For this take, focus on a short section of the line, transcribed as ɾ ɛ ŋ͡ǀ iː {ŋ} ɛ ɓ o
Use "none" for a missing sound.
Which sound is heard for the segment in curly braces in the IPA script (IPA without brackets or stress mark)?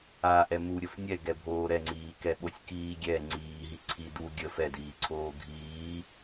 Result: k